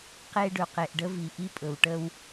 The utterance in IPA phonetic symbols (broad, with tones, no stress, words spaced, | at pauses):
qe˦ ɖɵ˨qe˨ʔɖə˦vi˨ ʔi˦pʼɵ˨wʈə˦w